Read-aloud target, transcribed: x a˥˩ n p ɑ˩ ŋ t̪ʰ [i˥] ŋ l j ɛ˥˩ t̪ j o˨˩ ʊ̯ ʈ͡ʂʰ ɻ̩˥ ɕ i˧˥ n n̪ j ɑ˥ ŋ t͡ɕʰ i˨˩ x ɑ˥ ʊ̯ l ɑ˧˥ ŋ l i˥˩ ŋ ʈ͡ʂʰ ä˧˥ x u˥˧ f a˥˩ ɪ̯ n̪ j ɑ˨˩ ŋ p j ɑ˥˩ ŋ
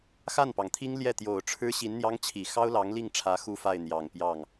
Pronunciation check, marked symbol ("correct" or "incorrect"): correct